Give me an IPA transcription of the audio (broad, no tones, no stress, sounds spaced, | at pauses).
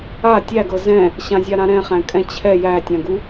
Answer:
a tʲ æ ɡ ɤ z ɛ̃ | ɕ ã zʲ a ɾ ã ɾ ɛ̃ χ æ̃ kʼ ɛ̃ t͡ɕʰ ɛ j æ tʲ ã ɡ u